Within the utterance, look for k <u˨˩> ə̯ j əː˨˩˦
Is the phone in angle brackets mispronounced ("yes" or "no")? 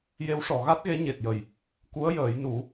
yes